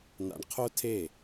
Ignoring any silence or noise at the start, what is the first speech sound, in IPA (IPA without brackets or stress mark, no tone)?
n̪